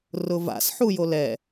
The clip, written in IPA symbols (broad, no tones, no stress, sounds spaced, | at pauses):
r ʊ v a̰ s ħ u j o l ɛ